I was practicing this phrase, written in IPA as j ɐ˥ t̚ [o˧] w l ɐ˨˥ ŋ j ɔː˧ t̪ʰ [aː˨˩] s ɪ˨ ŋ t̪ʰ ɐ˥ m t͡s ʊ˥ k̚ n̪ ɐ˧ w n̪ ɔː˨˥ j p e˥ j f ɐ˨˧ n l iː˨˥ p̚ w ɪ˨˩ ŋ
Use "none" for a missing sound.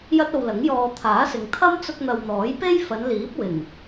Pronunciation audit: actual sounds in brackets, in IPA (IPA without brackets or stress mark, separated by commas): o˧, aː˨˥